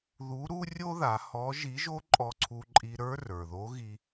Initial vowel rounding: rounded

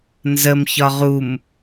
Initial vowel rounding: unrounded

